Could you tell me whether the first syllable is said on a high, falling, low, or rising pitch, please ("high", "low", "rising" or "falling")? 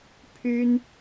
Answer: high